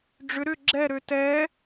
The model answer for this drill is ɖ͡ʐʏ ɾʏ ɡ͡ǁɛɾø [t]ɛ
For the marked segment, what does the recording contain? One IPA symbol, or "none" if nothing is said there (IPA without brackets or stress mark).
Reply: t